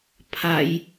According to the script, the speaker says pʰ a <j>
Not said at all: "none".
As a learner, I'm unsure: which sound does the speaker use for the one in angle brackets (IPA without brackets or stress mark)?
j